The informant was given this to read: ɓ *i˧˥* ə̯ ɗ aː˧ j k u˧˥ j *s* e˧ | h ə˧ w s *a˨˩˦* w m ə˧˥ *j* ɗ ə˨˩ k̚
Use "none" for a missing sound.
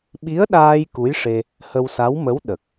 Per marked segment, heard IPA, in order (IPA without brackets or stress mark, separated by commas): i˧˥, ʂ, a˧˥, w